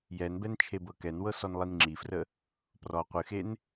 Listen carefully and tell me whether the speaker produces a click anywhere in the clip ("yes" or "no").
yes